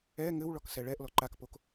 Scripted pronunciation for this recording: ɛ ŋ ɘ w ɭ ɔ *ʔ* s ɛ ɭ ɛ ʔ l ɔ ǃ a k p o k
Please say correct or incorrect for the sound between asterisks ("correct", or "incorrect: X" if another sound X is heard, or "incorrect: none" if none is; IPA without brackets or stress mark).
incorrect: k